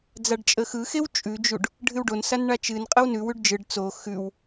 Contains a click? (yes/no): no